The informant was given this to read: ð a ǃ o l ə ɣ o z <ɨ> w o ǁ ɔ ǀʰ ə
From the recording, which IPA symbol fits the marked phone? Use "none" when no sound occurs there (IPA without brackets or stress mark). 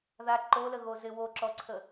ɪ